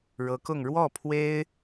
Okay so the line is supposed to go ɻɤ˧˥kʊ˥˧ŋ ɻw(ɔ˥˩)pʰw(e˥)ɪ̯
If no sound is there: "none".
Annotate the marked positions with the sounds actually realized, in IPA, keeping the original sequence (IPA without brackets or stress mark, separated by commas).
ɔ˥˩, e˥